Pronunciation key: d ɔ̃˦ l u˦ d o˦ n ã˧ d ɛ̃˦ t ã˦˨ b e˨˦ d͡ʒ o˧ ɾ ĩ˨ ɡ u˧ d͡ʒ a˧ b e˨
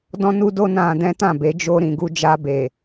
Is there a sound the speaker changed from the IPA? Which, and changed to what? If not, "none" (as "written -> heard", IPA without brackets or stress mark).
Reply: l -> n